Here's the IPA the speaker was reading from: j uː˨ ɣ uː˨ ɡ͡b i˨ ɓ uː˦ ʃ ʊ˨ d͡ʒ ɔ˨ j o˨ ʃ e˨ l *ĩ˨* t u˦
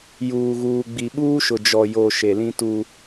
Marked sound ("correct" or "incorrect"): incorrect